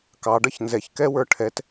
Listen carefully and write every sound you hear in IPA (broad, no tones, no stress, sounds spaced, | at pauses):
k ɑ ɖ ʌ ç n z ɛ ç k ɛ w ə˞ ʈʰ ɛ t